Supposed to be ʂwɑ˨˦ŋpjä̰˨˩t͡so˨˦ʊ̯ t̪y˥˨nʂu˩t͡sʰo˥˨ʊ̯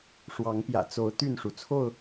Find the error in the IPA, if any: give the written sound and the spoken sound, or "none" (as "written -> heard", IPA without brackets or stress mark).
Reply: none